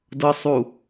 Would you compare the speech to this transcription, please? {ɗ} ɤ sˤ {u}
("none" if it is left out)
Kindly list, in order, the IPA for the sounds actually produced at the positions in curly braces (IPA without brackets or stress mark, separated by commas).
d, u